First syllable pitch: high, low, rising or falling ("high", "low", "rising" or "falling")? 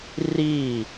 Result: falling